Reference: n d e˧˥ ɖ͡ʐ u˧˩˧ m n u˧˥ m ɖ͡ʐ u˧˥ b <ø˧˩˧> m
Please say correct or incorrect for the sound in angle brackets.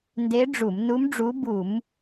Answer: incorrect